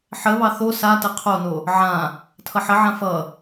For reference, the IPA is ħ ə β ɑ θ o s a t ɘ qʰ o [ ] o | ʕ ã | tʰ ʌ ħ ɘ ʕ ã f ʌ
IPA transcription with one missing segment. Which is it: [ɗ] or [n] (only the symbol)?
n